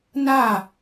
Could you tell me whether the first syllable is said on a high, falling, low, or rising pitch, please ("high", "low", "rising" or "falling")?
falling